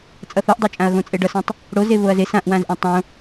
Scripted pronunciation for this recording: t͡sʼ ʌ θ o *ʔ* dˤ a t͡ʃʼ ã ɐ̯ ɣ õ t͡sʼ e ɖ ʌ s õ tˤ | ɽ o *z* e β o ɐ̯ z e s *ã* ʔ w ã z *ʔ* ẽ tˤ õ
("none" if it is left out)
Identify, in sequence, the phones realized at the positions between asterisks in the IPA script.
ʔ, z, ã, ʔ

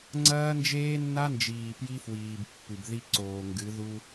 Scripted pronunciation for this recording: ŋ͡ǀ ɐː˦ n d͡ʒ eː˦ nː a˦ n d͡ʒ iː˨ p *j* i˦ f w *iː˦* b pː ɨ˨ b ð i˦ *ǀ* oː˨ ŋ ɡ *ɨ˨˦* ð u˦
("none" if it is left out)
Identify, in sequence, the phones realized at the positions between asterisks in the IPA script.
j, iː˨, ǀ, ɨ˨˦

